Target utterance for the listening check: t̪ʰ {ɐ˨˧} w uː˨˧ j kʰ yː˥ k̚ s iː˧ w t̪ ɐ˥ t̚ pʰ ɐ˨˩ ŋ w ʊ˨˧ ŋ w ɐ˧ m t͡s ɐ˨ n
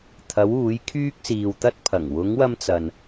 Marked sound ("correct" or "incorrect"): correct